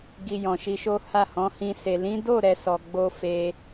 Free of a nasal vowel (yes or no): no